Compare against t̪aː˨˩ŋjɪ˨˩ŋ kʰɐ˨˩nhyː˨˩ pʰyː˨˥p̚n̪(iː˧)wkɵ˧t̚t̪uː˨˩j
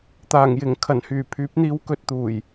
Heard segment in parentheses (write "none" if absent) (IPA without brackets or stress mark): iː˧